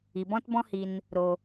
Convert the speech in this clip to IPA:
i˨ b ɔ̃˦ t b ɔ̃˦ h i˧ n | ɾ o˧

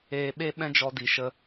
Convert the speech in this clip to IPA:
eː˨ ɓ e˦ ɓ ɛ̃˦ d͡ʒ ɔ˧ d i˨ ʃ ə˧

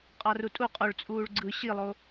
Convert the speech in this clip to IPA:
qʼ ɑ r u tʼ u qʼ o ɭ t͡sʼ uː ɭ ɡ͡ǀ ɯ ɕ i lˠ o

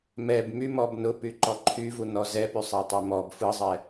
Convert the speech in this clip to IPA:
m ɛ b m y m ɔ b n ʊ p y ǃ ɔ ǃʰ y v u n ɔ z ɛ p y sˤ ɛ tˤ ɛ m ɔ b f ɯ zˤ ɛ

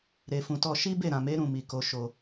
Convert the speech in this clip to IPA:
ɾ e˨ f ũ˨ t ɔ˧ ʃ i˦ b e˦˨ ɾ ã˨ m e˨˦ ɾ ũ˦˨ m i˨ k o˧ ʃ o˧

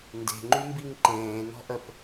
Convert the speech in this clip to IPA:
n d e̤ ŋ͡ǃ y m b i ŋ ǃ ẽː n ɔ̤ ʔ ə p

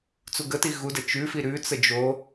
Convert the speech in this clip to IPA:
t͡s u ɡ ə t i ɣ u d ə t͡ʃ ʉ f i ɾ ʉ t͡s ə d͡ʒ o

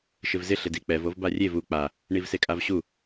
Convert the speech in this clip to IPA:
ʃ ɪ v z ɪ ɬ ɪ d i k͡p ɛ v o v b a rʲ e v u k͡p a | ɳ i v s e kʼ a v ɕ u

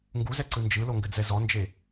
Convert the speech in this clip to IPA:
ŋ ɡ u z ɛ ǀ ɯ n d͡ʒ ɯ l o ŋ ɡ ɘ d͡z ɛ z ɔ n d͡ʒ e

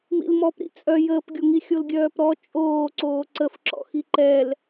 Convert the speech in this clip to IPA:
m ḭ l m ɔ p ɾ ḭ t͡sʼ œ j əː p ɡʲ o ŋ i xʲ o l ɡʲ œː p ɾ ɔ t͡ʃʼ oː ǀ oː ǀ ə f ǁ ɔ̰ x i ǃ ɛ l

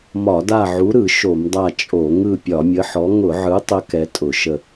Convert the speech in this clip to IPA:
m ɒ˧˩˧ d a˦˨ ʕ u˨˥ ɾ ɯ˧˩˧ ʃ o˧˩˧ m dˤ a˦˨ t͡ʃʼ o˧˩˧ ŋ ɯ˦˨ pʲ ɒ˧˩˧ mʲ ə˨˥ ħ ɔ˨˥ ŋ ʊ˧˩˧ ʕ ɯ˨˥ tˤ ə˨˥ k ɛ˨˥ tʼ ʊ˧˩˧ ʃ ə˦˨

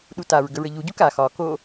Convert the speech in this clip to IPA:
ɗ u t a ɹ ɡ ə ɹ ə ʎ u ɟ u k a x ɒ k o

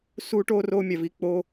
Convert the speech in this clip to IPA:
s uː˦ ʈ oː˦ r oː˦ mʲ æ˧ v i˧ k͡p o˧

